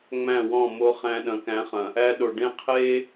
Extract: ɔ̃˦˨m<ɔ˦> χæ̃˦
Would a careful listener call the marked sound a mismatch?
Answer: yes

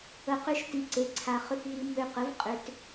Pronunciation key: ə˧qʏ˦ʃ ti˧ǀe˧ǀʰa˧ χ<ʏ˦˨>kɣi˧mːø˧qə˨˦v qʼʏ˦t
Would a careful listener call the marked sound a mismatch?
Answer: yes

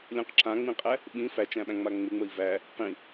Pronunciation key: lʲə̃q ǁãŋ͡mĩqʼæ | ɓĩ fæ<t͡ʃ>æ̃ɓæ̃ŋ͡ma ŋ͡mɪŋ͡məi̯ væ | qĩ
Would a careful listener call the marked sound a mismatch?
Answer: no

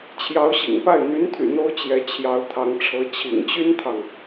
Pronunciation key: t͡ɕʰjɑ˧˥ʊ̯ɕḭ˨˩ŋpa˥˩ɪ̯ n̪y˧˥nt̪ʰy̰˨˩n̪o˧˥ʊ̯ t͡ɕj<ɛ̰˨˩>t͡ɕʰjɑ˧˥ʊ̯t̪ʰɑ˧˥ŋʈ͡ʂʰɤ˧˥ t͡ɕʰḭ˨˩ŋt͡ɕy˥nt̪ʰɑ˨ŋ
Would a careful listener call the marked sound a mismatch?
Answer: yes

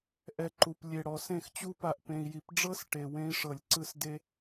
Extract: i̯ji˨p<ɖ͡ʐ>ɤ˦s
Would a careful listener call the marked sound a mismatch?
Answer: no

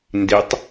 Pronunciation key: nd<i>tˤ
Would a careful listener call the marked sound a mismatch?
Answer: no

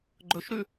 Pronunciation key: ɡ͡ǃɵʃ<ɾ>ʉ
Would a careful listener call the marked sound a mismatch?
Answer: no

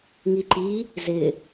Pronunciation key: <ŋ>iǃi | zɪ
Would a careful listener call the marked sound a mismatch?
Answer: no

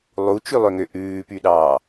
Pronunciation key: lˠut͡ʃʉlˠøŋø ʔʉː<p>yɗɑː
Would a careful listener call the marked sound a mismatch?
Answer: no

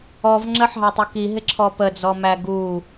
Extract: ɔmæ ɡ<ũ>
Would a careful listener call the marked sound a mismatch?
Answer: yes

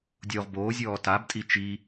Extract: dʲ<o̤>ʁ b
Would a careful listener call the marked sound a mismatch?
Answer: yes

